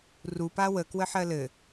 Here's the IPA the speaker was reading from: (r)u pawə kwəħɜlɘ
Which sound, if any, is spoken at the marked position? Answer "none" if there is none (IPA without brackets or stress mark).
r